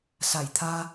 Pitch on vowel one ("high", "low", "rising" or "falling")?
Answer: low